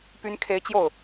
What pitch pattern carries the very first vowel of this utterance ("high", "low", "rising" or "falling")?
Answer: rising